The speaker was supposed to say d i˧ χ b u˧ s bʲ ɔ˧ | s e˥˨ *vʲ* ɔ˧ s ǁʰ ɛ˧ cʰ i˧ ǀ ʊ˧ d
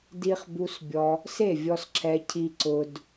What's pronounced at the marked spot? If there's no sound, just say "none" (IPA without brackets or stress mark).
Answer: vʲ